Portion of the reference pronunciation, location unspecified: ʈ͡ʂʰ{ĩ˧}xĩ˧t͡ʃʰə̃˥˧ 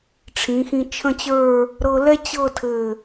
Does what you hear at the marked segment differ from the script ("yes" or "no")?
yes